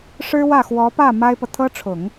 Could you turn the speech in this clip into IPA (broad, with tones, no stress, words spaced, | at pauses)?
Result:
ʂɻ̩˥wä˥˩xwɔ˧˥pä˥˩ ma˥ɪ̯pɤ˨ t̪ʰɤ˥ʈ͡ʂʰʊ˨˩˦ŋ